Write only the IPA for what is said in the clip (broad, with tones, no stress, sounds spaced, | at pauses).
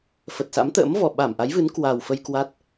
f ə˨˩ t̚ s a̰˧˥ m t̪ ə̰ː˧˥ m v ɔ˧˩ ɓ a˧˩ m ʔ a˨˦ j v ɨ˨˦ n k w a˨˩ w f ə˧ j k w a˦˥ t̚